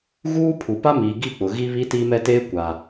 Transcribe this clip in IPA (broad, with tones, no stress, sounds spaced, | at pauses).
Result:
ɣ uː˦ pʰ u˨ p a˦ m iː˨ ɡ i˦˨ k͡p ʊ˨ ɣ i˦ β i˦ t iː˦ m ɛ˦ t eː˦ kʷ a˨